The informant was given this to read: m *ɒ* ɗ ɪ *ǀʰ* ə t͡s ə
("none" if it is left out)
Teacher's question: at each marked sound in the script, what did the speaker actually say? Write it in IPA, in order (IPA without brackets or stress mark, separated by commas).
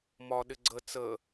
ɒ, ɡ͡ǀ